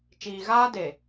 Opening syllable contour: low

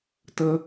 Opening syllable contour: high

